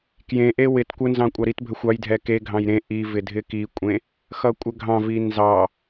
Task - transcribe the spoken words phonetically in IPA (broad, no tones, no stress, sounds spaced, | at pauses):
k j ẽ ʔ e w ɪ t kʷ ə n z ɑ̃ kʷʼ ɑ ɾ i t bʱ ə xʷ ɑ j dʱ ɛ k e ɡʱ ɑ̃ j ɾ ẽ ʔ i v ɪ dʱ ɪ k i kʷʼ ẽ | x ʌ kʷʼ ə ɡʱ ɑ̃ v i n z ɑ